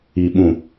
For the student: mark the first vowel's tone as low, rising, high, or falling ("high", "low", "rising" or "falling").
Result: low